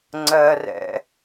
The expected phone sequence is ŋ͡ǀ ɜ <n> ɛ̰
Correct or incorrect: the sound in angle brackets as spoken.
incorrect: r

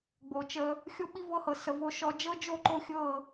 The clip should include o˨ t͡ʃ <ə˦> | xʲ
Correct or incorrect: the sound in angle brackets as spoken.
correct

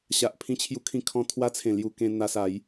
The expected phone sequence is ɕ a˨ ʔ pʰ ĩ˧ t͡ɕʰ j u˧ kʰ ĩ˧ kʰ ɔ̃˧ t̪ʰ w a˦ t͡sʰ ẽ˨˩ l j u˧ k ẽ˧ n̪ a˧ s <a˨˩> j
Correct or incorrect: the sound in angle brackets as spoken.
incorrect: a˨˦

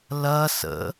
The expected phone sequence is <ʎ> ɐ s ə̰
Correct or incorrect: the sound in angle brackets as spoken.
incorrect: l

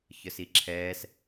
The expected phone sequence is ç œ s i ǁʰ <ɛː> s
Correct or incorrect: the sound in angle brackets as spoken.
correct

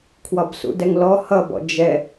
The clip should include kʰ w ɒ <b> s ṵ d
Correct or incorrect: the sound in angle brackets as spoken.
correct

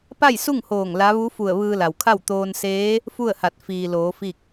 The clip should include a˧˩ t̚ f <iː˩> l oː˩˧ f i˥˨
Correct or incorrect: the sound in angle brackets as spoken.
correct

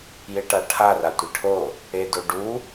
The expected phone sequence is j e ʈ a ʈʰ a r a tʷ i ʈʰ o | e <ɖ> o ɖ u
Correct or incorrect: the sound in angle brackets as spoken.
incorrect: d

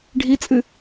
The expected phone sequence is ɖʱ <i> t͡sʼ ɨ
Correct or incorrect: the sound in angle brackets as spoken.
correct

